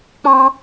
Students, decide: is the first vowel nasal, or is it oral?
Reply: nasal